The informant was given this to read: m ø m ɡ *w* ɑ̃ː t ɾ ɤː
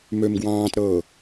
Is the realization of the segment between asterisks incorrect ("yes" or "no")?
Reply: no